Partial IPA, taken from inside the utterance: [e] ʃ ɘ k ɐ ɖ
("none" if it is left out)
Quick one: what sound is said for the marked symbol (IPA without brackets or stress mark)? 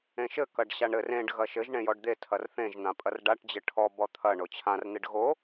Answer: ẽ